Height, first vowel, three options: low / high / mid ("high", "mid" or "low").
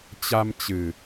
low